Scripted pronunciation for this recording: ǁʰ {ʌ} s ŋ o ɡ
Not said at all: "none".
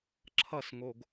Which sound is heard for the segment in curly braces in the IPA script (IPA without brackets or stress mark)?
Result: ʌ